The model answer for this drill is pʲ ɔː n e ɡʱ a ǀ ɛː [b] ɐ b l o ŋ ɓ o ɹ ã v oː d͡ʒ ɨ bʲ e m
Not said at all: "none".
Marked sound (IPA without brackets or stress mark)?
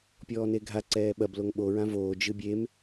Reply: ɓ